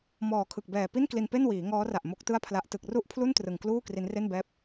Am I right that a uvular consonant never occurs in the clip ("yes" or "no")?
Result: yes